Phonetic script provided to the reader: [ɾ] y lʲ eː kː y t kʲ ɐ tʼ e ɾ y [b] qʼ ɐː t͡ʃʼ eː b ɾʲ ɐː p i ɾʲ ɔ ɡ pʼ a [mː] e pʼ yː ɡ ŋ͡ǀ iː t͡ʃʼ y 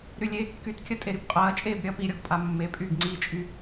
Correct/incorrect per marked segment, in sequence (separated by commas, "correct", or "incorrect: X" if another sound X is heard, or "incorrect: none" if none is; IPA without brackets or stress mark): correct, correct, correct